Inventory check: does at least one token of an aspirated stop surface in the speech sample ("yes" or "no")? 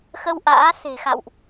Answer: no